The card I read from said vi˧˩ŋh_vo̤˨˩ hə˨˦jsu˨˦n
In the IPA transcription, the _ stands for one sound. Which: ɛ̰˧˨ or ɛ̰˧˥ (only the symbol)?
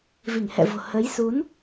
ɛ̰˧˨